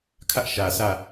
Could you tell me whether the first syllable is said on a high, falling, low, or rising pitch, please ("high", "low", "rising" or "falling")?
high